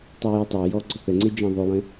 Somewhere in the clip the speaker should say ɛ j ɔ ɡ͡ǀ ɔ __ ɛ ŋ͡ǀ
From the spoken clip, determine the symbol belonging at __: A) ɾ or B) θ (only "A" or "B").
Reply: B